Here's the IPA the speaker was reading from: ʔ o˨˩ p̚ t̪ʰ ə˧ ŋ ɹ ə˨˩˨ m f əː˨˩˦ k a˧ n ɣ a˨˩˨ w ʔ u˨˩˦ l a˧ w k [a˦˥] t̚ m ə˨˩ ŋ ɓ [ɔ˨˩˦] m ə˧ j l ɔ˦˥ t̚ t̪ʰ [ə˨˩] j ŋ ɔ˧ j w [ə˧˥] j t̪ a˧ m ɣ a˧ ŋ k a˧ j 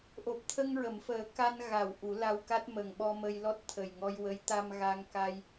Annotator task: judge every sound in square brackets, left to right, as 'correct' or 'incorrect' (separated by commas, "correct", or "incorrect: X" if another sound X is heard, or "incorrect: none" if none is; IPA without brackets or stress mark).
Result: correct, incorrect: ɔ˧, correct, correct